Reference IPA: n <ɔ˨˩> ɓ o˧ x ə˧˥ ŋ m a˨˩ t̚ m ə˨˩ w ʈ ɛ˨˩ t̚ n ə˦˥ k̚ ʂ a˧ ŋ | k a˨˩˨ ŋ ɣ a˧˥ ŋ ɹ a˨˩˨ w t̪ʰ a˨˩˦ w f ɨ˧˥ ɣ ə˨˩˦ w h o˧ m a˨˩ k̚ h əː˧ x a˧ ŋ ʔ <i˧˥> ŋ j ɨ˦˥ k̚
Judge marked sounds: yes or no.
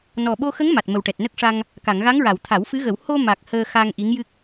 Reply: yes, yes

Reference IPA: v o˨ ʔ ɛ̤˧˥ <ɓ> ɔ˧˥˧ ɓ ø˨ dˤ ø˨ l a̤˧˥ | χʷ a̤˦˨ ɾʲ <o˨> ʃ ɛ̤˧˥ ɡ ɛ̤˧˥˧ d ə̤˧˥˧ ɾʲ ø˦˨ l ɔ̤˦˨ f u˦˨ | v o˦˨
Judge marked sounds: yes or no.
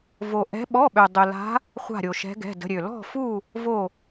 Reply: yes, yes

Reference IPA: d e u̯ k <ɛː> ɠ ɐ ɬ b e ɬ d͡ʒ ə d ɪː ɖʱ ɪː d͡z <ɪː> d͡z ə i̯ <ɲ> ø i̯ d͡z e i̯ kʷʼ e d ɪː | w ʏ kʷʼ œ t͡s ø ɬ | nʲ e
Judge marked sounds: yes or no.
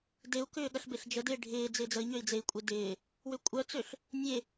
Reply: no, yes, yes

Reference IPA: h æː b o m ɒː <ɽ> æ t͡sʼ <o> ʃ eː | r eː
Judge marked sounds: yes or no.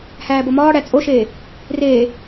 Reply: yes, yes

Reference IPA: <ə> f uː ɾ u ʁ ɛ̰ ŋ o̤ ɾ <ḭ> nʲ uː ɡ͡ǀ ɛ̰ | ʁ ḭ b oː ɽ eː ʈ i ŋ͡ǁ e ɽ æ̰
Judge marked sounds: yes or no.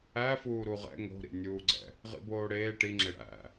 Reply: no, yes

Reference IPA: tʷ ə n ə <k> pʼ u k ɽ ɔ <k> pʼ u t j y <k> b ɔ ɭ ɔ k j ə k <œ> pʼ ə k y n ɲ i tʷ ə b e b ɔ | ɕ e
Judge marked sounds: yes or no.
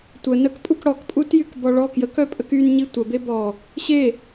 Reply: yes, yes, yes, yes

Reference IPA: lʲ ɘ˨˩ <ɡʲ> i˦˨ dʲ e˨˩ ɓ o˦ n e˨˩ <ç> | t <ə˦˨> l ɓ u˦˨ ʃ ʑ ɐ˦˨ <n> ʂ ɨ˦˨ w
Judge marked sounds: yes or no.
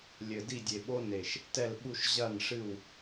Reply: no, no, no, yes

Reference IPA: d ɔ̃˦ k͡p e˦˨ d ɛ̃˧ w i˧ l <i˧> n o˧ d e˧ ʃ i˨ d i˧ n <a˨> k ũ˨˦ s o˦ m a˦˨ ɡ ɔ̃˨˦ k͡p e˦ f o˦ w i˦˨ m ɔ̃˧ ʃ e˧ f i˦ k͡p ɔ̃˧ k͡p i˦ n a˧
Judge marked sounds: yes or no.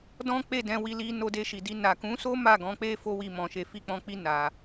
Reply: yes, yes

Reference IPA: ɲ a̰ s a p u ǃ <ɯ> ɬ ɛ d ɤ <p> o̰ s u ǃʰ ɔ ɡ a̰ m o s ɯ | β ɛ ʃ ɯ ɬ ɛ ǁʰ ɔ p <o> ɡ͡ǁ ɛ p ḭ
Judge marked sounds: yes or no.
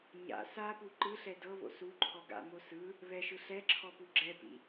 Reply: yes, no, no

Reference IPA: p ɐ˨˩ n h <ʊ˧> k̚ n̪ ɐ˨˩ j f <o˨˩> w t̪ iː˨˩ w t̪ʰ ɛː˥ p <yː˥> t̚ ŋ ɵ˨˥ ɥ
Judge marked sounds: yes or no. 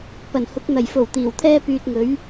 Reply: no, yes, no

